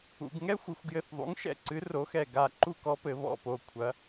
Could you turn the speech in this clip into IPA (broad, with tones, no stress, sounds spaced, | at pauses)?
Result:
ṵ˩˧ ɡ ŋ ɛ˥ xʷ ɨ˩˧ xʷ ɡ j ɘ˧˩ θ ðˤ ṵ˩˥ ŋ ʃ ɛ̰˩˧ ǀ ɨ˩˥ r o˩˥ x ɛ˧˩ ɡ a˧˩ ǃ u˥˩ k ɔ˧˥ p ɘ˩˧ β ɔ̰˧˩ p o˧˩ kʷʰ ɐ˩˧